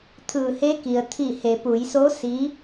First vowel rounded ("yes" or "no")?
no